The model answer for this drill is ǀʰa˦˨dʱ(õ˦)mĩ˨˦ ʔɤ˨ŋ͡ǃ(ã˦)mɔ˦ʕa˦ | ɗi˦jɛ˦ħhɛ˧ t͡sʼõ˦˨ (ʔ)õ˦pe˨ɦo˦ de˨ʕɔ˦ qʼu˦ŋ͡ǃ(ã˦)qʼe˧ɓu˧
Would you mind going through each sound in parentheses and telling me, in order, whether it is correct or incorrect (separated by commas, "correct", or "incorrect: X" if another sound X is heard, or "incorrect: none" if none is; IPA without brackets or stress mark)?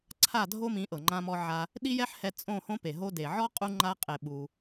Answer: incorrect: o˦, correct, incorrect: h, incorrect: a˦